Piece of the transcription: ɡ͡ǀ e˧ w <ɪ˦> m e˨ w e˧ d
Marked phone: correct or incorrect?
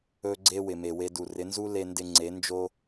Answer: incorrect